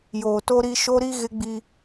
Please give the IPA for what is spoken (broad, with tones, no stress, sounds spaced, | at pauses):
j oː˨ t o˦ ɾ i˦ ʃ o˦ ɾ i˦ ɣ ɪ˦ ɡ͡b i˦